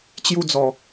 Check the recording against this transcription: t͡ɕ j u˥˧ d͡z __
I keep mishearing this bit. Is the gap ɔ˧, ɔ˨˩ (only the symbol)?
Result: ɔ˨˩